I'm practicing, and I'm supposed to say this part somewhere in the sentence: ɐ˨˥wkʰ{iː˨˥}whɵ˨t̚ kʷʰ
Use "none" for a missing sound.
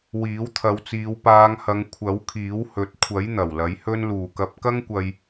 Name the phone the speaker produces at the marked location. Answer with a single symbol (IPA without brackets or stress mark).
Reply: iː˨˥